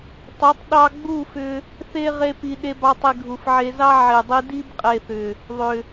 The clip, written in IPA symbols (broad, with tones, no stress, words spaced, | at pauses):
tˤu˨˦tˤ ɗɑ˧ɡ͡bu˦˨fʏ˧ | θe˦ ʁe˦pi˧ ɗe˧bɑ˧tˤi˨ ɡʱu˨fʕe˧zɑ˦ ʕe˨dˤi˧ di˦bqʼe˨θʏ˨ | ðˤʏ˨